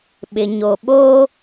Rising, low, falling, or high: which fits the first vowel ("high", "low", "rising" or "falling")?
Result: low